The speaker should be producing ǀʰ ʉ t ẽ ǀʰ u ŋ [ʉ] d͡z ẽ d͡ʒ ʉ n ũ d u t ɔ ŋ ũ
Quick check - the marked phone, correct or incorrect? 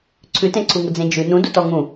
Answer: incorrect